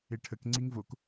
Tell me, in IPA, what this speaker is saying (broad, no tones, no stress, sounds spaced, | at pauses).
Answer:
e ʈʰ ə k ŋ͡ǀ i ŋ v o k